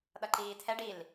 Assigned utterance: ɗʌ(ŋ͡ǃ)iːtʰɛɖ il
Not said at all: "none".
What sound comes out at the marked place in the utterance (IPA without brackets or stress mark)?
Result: ǃ